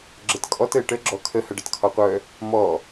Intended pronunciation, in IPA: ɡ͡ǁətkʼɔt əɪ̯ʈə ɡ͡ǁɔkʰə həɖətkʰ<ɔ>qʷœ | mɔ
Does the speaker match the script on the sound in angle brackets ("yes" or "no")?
yes